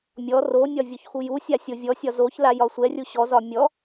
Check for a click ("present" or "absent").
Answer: absent